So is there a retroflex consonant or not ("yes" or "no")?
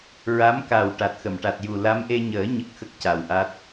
yes